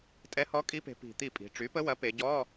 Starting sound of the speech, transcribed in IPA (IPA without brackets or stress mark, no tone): tʼ